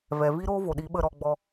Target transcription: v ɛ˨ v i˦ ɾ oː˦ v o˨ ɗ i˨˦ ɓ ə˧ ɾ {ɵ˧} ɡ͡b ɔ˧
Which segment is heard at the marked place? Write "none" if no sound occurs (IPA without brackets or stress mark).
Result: ɔ˧